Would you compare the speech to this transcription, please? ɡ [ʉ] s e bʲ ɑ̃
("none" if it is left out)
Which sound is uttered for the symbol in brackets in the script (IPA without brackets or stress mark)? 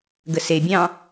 ə